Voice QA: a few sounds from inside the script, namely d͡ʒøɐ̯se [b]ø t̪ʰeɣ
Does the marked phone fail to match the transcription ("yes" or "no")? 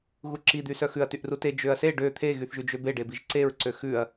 yes